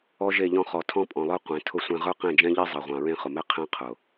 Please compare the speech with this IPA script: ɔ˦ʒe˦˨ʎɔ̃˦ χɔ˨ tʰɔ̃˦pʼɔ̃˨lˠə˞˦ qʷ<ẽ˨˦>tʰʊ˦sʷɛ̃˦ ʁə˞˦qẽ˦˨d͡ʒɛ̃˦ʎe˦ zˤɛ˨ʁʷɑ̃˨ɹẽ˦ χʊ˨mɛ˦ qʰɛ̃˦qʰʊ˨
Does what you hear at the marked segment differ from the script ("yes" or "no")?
no